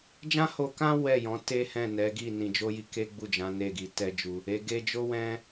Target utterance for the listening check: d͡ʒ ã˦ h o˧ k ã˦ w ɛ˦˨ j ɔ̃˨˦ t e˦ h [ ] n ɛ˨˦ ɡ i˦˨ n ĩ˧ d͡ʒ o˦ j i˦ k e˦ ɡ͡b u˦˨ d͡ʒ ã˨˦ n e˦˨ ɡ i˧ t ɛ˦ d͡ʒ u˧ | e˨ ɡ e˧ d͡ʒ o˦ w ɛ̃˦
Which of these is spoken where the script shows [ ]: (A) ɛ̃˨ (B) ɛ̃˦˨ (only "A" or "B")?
B